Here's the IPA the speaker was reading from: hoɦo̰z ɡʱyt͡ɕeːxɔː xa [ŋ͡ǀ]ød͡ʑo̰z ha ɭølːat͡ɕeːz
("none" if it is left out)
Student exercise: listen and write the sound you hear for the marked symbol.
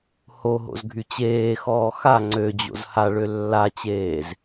ŋ͡ǀ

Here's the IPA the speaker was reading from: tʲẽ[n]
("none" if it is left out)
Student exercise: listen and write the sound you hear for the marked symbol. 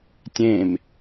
m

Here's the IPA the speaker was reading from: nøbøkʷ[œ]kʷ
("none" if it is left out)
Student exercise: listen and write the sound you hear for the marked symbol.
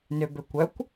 œ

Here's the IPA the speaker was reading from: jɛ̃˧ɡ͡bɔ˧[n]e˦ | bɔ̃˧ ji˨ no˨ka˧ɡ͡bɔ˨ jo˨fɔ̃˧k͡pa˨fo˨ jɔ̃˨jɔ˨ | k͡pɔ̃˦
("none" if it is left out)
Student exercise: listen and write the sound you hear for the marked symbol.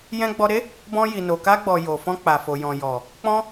ɾ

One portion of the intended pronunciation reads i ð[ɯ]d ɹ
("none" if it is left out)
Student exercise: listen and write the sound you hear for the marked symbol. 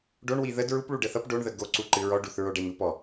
ə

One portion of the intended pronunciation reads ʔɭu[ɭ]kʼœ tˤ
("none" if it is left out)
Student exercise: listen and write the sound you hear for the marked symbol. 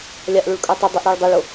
ɭ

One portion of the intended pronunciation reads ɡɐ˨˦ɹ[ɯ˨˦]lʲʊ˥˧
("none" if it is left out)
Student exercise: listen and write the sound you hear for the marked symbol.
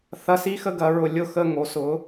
ʊ˨˦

